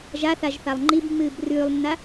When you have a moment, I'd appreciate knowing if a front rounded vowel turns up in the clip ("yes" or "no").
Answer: no